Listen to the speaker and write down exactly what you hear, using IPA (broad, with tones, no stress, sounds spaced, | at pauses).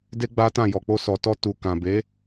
d e˦ ɡ͡b a˦ t ã˦˨ j ɔ˨ k͡p o˧ s ɔ˨ t ɔ˧ t u˨ k ã˨ b e˨˦